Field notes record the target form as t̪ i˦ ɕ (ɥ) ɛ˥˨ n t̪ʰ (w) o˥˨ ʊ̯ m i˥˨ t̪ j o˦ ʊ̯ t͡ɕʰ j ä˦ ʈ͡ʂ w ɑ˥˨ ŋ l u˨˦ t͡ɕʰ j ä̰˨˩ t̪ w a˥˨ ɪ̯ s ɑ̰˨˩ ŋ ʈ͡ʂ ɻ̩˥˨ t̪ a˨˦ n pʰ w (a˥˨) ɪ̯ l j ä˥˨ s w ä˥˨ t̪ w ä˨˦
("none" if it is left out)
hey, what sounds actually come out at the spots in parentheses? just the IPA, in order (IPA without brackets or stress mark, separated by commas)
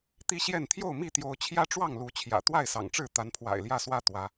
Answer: j, j, a̰˨˩